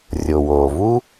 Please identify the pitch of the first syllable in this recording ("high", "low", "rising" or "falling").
low